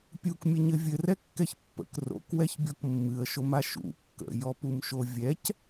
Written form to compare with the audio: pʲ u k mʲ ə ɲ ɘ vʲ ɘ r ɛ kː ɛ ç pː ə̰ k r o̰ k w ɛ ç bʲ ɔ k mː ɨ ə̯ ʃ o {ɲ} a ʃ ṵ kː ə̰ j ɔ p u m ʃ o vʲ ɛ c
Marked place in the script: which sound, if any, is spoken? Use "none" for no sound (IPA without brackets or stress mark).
m